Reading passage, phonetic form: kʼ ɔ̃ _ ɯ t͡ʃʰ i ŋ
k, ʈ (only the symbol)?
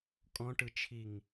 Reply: ʈ